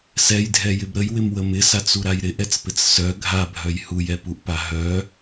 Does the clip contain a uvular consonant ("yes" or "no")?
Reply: no